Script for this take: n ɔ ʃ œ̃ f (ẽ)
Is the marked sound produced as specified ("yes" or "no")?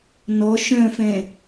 no